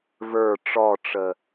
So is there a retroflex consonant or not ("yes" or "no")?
yes